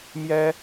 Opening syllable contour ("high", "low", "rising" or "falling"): high